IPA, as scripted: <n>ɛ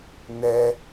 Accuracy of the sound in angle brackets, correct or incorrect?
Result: correct